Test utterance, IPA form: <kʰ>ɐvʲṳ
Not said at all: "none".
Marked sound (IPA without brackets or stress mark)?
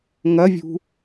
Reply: ŋ